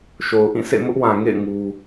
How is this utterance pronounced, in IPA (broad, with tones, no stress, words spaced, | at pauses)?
ʃo˨ʊ̯ ʔĩ˦˨sḛ˦˨ mʊ˦ʔwã˨ŋḛ˦˨ɪ̯ ŋu˦